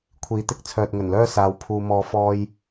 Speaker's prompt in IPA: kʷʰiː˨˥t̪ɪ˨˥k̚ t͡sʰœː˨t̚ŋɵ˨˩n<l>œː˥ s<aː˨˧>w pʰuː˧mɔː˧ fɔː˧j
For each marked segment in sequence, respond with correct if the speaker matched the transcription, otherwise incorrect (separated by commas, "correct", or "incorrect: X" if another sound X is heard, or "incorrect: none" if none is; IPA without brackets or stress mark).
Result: correct, correct